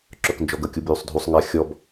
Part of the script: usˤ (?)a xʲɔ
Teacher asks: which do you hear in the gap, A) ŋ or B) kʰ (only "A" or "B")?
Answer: A